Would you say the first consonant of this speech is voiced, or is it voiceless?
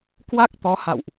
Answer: voiceless